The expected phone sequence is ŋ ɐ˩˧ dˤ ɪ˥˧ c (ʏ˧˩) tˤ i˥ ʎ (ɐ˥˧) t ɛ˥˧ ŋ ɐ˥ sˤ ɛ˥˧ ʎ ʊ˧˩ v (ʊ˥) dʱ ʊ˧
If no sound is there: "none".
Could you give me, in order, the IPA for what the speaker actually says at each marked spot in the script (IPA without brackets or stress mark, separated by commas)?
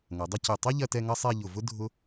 ʏ˧˩, ɐ˥˧, ʊ˥